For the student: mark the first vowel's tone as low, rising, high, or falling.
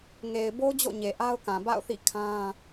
low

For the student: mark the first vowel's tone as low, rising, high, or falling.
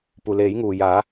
low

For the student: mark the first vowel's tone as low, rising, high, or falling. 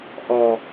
low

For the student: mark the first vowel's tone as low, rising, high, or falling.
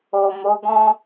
low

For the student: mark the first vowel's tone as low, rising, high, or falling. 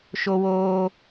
high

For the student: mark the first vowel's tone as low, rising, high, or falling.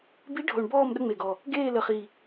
rising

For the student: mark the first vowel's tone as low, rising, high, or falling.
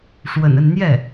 low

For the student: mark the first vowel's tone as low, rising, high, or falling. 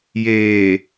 low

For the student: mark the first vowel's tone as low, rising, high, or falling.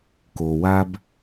low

